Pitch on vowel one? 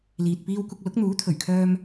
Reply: low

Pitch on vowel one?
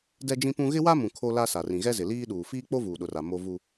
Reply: high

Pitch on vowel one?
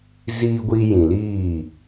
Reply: high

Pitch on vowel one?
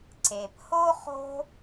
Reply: low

